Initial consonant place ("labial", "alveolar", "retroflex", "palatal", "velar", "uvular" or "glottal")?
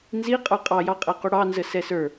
alveolar